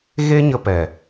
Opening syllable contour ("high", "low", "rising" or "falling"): high